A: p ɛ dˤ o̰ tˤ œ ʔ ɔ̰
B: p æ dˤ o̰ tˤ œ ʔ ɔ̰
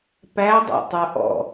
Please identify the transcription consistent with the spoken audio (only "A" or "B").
B